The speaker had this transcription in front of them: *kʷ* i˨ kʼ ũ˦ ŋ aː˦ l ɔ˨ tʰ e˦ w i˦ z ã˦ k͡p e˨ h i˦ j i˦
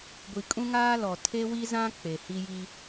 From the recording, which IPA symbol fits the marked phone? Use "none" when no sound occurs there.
ɡʷ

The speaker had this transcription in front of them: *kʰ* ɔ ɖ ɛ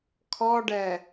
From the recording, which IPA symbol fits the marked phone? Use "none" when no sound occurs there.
kʰ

